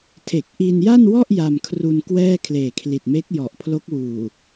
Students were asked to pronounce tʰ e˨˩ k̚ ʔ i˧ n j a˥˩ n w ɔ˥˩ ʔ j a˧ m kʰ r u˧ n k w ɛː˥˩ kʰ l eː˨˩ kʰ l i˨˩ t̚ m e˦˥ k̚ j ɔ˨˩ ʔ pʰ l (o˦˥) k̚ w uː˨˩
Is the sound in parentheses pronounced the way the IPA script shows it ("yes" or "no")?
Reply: yes